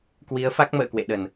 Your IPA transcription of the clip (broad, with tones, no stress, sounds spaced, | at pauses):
k w i˨˦ ə̯ f a˦˥ k̚ m ə̰ː˧˨ k w ḛ˧˨ ɗ ə˧˩˨ n